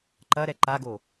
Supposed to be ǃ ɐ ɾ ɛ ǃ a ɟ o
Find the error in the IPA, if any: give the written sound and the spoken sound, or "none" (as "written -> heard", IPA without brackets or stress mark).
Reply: ɟ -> ɡ